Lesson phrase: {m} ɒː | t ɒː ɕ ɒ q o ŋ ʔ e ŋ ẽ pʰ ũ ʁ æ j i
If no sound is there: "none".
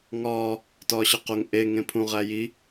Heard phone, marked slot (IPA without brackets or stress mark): ŋ